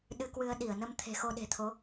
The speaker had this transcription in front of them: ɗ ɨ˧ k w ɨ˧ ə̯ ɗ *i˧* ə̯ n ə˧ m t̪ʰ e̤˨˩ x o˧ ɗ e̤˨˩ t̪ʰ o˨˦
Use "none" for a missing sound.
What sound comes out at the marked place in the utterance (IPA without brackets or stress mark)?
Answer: i˧˩